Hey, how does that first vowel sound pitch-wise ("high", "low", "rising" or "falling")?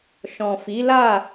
low